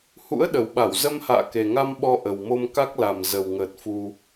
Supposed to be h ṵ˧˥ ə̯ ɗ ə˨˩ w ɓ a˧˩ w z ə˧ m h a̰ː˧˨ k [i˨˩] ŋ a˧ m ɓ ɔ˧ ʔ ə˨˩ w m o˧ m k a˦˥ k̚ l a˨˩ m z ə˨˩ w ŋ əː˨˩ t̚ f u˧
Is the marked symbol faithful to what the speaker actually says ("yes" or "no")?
no